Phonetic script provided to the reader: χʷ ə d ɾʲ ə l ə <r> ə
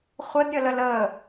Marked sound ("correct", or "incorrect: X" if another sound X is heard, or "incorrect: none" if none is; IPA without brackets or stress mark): incorrect: l